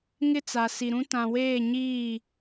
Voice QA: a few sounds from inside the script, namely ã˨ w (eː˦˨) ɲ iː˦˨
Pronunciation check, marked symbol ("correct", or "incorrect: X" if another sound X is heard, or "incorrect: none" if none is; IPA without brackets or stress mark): correct